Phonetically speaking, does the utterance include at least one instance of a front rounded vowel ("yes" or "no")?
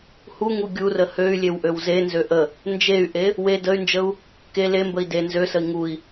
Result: yes